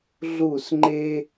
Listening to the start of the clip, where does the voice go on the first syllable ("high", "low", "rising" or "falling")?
falling